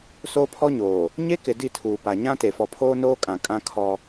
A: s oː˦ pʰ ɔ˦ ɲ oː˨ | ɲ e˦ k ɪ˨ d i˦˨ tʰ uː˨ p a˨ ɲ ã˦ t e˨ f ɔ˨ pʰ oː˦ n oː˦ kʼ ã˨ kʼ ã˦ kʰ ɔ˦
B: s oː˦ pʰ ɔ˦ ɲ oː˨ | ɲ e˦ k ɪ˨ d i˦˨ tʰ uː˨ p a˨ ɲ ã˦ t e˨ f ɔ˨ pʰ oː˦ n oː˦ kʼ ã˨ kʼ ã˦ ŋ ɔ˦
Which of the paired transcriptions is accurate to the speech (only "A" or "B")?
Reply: A